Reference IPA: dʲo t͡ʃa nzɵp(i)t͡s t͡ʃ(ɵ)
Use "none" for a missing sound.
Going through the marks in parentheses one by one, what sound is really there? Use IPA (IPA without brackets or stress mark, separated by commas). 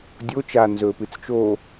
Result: ɨ, o